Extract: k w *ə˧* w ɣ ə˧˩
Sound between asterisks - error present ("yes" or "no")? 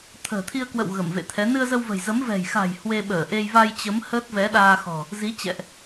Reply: yes